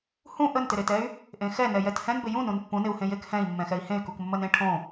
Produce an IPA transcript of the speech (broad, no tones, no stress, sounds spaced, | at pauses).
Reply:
h ũ ʔ ə n t ɪ ɾ e t ɛ y̯ | ʔ ẽ x ɛ n ɛ j ɛ t h ɛ̃ n b ɪ j ũ n ũ n pː ũ n ɪ u̯ h ẽ j e k h ɛ̃ i̯ mː ɛ̃ x ɛ i̯ h ẽ y̯ k u k mː ə n ẽ ʈʰ õ